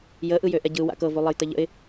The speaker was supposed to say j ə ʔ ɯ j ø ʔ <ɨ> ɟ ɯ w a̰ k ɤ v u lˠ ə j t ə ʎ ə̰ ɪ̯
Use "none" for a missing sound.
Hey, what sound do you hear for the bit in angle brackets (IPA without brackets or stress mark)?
ɛ